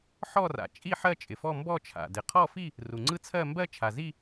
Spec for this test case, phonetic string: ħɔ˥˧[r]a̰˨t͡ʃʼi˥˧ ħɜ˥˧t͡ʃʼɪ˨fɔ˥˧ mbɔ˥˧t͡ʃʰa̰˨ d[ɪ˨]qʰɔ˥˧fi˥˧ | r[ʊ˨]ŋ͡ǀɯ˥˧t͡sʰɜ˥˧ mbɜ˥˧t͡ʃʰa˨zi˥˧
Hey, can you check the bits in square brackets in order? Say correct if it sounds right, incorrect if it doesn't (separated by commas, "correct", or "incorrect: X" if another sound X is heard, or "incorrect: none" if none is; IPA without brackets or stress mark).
correct, correct, incorrect: u˨